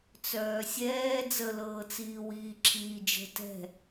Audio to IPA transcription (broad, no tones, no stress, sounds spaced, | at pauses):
t͡s œː sʲ ɛː d͡z ə l ɤː t͡s iː w iː ǁʰ iː d͡ʒ ə̤ t ɛ̤